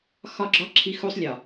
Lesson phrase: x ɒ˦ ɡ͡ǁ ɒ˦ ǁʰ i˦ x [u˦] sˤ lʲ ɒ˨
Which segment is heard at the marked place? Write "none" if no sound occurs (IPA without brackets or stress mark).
u˦